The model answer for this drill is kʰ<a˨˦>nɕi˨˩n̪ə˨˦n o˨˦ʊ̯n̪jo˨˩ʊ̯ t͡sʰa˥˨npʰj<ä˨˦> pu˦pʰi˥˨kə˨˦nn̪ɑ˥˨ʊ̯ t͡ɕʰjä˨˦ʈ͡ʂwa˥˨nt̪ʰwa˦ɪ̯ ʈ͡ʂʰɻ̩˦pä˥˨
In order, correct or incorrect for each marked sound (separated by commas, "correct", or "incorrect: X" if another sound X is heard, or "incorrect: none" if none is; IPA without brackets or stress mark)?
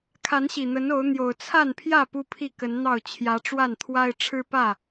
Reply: correct, incorrect: ä˥˨